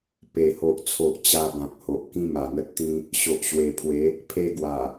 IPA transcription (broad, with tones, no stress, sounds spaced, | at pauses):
p e˨˩ h o˨ ʔ t͡sʰ o˨ ʔ t͡ɕ a˧ b ã˨ k̚ h o˨ ʔ k ĩ˦ m a˨˩ n̪ ə˦ t̚ t̪ ĩ˦ | ɕ o˨ ʔ ɕ w e˨˩ pʰ w e˨˦ | pʰ e˧ ɡ w a˨˩